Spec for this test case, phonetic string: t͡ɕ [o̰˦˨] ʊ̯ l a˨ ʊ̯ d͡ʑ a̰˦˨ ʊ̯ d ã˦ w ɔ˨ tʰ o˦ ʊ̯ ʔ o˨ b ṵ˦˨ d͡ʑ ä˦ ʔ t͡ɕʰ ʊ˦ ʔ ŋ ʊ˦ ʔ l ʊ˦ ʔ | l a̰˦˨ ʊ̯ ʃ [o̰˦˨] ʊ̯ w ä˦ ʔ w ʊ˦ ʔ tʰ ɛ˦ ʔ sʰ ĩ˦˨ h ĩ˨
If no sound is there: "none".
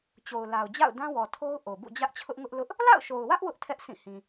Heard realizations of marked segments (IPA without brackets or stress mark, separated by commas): o˨, o˨